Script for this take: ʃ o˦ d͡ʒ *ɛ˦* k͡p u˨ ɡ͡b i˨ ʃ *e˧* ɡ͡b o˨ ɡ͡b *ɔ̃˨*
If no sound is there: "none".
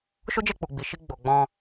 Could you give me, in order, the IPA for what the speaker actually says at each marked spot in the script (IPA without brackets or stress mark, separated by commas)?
ɛ˦˨, i˧, ɔ̃˧